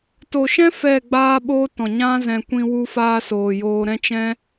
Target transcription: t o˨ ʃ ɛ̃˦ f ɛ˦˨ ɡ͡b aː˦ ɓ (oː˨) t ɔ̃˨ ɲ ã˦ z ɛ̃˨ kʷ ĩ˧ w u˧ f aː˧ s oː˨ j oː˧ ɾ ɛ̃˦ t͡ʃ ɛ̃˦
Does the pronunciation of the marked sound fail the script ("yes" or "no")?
yes